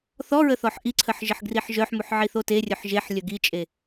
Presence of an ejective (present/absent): present